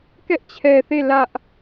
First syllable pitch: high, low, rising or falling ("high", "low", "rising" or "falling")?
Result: high